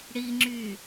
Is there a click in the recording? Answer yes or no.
yes